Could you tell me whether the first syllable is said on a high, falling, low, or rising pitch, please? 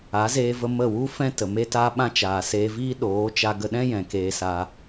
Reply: rising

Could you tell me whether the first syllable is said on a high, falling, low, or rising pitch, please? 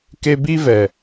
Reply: high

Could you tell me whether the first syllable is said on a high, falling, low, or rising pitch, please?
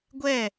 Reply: falling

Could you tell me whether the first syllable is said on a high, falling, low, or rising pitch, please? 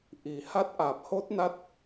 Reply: low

